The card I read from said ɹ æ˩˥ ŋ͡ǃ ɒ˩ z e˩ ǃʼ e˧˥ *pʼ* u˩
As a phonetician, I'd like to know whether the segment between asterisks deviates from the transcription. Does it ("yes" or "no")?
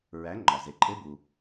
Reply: yes